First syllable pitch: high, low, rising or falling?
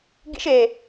high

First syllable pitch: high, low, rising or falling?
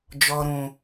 low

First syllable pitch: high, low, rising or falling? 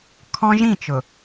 high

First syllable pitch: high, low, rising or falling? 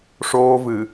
high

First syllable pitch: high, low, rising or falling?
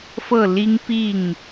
falling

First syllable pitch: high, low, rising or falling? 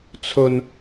low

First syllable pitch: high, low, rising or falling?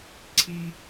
high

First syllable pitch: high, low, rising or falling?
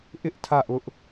high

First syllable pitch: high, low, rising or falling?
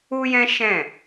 high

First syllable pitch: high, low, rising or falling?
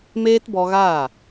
high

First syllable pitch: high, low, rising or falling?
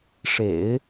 low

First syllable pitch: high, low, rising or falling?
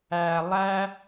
low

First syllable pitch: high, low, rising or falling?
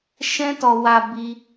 high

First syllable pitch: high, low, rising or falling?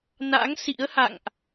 rising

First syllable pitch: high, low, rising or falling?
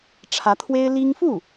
rising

